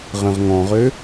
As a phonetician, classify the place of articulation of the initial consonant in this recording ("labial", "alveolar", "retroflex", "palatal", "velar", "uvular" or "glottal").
uvular